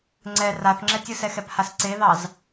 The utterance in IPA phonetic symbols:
ŋ͡ǀ ɛ r a θ ŋ͡ǁ ɛ tʲ ɯ s ɛ x ɛ p h a s ǀ e ð ɑ z

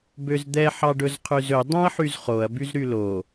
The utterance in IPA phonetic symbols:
b ø z d̪ ɛ ħ ɑ ɖ ɵ z qʰ ʉ z ɵ dˤ œ̃ ɐ̯ ħ y z χ o ɐ̯ b y z ɾ y l o

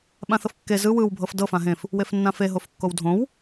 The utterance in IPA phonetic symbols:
ɓ ã θ ɤ f kː e z ɯ w ɯ w bʱ ɤ f d ɤ f ã ɦ ẽ f | w e f nː ã f e ɦ o f kː o w dʱ õ w

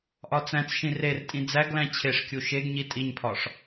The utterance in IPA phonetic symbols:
ʔ ɒ t͡s æ̃ t͡s ʃ ĩ r e r tʼ ĩ d͡z æ ɡ l æ̃ t͡ɕʰ e ʂ kʲ u ʃ e ɡ ɲ i tʼ i ɲ pʰ ɒ ʂ

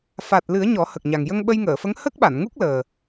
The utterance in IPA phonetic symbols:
f a˨˩ t̚ l ɨ˨˩˦ ə̯ ɲ ɔ˨˩˦ h ə˨˩ k̚ ɲ a˨˩ ŋ j ə˧ ŋ ɓ ə˧ j ŋ əː˨˩˨ f ə˧˥ ŋ h ə˦˥ k̚ ɓ a˨˩˨ n ŋ u˦˥ k̚ l əː˨˩

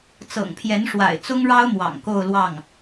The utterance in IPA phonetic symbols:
t͡s ɤ̰˨˩ ŋ pʰ j ɛ˧˥ n ʂ w a̰˨˩ ɪ̯ t͡s ʊ˥ ŋ ɻ ɑ˥ ʊ̯ m w ɑ̰˨˩ ŋ k o˥˧ ʊ̯ l w ɑ˥˩ ŋ

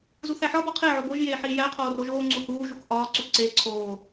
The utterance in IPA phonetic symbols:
z u θ æ ħ ɒ b ɒ qʰ e ʕ o b o ʒ j eː ħ iː j æ qʰ oː r o ʒ oː ŋ͡ǀ u h uː ʒ u k ʔ ɒː ǀ u ǀ eː ǀʰ oː

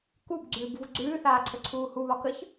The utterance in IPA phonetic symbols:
k u b ɡ͡ǀ ʉː b v u ɡ͡ǀ ʉː θ aː ǀʰ ə ǀʰ uː h u β ɒ k ə ç

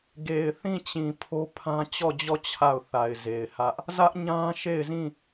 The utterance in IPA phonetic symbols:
ɡ e˨ ɪ̯ θ ĩ˦˨ t͡ɕ ĩ˨ pʰ o˦ pʰ ã˦ t͡ɕ ɔ˦˨ d͡ʑ ɔ˦˨ t͡ɕʰ a˦˨ ʊ̯ θ a˨ ɪ̯ z e˨ ɪ̯ h ä˦ ʔ | z ä˦ ʔ ɲ ã˦ ʃ e˦˨ ɪ̯ z ĩ˦˨

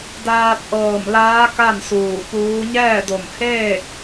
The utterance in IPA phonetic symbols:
d aː˧ p̚ ʔ ɤː˧˩ m l aː˧˥ k a˥˨ n s uː˧˩ p uː˧˥ ɲ ɛː˥˨ d o˧˩ m h eː˥˨ k̚

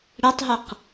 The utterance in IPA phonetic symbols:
ɽ ɛ tˤ ɦ ə q

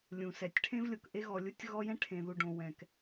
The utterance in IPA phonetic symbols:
lʲ ũ˨ s ɛ˨ tʲ ʈʰ ẽ˦ v lʲ o˨ k ʔ e˦ ɣ ɔ˨ lʲ u˦ tʲ ɣ ɔ˦ j ɛ̃˦ ʈʰ ẽ˨ ð u˨ ɖ õ˨ w ɛ̃˨ k

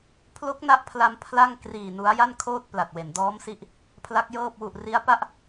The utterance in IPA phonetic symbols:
pʰ l o˦˥ k̚ n a˦˥ ʔ pʰ l a˧ m pʰ l a˥˩ ŋ k r iː˨˩ n u˦˥ a̯ j a˥˩ n kʰ oː˥˩ t̚ p l a˨˩ t̚ w e˩˦ n d ɔː˦˥ m s i˦˥ ʔ | pʰ l a˦˥ k̚ j ɤː˥˩ p̚ w u˨˩ ʔ r i˦˥ a̯ p a˦˥ ʔ

